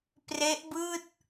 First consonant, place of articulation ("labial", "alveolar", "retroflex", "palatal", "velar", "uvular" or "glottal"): labial